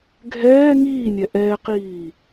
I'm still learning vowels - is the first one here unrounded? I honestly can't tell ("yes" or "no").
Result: yes